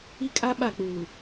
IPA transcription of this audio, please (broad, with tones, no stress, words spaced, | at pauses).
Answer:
i˦kʼa˦ ɓa˦˨k͡puː˨